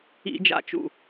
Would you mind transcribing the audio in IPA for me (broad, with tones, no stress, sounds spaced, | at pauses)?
ḭ˧˩˧ d͡ʒ a̰˧˩ t͡ʃ ṵ˧˩